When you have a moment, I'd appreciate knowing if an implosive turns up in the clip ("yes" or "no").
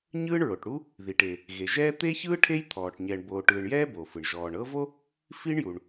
no